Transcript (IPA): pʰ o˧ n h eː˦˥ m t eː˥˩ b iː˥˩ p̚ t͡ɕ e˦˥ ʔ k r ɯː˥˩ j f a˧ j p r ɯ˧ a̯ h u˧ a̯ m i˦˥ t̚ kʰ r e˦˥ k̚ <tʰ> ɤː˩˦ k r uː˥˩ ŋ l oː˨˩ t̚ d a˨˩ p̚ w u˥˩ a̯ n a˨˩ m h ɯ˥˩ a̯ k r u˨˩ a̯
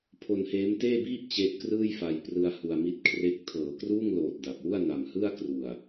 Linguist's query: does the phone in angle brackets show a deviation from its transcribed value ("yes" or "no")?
no